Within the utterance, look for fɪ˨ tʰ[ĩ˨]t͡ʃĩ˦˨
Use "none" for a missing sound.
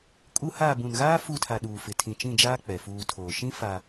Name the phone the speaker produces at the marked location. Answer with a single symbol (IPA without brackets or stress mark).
ĩ˨